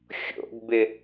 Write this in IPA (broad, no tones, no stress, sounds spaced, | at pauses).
xʲ o̰ ɡ b ɪ